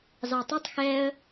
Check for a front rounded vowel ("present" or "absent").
absent